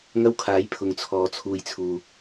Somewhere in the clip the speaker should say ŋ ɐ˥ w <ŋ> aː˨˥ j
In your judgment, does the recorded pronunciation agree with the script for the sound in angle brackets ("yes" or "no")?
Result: no